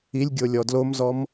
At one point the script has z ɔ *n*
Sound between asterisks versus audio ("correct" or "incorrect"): incorrect